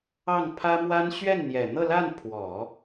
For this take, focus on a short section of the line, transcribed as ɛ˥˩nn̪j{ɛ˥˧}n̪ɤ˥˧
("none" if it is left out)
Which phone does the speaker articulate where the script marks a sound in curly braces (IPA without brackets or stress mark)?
ɛ˨˩